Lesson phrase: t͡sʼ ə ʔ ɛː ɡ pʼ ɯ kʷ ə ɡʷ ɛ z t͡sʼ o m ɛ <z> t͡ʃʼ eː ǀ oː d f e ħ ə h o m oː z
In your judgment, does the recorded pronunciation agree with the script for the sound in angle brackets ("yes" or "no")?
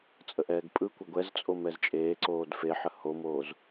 yes